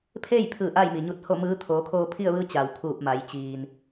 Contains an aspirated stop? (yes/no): yes